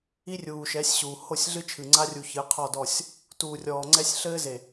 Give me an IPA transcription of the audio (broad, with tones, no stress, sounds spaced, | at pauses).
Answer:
i˦ rʲ uː˨ ʃ ɛ˨˦ sʲ ɕ uː˨ h o˦˨ sʲ ɮ ɨ˦ t͡ʃʰ ɨ˨ ŋ͡ǀ a˦ rʲ u˨ ç ɨ˨˦ qʰ ɔ˦˨ d ɔ˦˨ sʲ | t uː˨ rʲ ɔː˨ ŋ͡ǀ ɛ˦ sʲ ɬ ɘː˦ z e˨